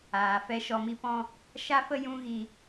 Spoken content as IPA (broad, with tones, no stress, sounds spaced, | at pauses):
aː˨ f ɛ˨˦ ʃ ɔ˨ m i˧ p ɔ̃˧ | ʃ a˦ f ə˦ j ũ˦ ɣ i˧